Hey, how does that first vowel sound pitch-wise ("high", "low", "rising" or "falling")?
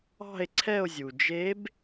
falling